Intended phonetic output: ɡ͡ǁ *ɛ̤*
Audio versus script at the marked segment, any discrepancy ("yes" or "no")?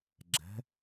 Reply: no